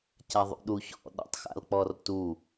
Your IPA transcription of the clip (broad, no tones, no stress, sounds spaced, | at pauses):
c a ðˤ ṵ ɗ u ç ɔ̰ ɗ ɔ̰ tˤ x a̰ l k͡p ɔ r t u